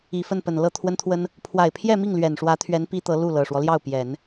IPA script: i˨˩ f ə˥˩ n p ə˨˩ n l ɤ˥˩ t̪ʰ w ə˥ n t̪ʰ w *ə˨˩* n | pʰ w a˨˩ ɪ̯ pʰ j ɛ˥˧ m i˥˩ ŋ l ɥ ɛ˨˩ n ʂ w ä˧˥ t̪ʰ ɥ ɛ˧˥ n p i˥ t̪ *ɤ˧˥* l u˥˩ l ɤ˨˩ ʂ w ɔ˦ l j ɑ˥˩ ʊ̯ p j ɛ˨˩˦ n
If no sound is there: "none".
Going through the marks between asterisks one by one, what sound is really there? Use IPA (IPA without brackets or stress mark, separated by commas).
ə˥, ɤ˧˥